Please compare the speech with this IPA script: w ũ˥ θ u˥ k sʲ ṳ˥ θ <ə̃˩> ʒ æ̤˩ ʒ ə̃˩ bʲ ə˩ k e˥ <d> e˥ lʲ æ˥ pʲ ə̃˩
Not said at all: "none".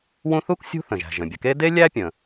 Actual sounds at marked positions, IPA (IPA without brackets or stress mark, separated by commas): ə̃˩, d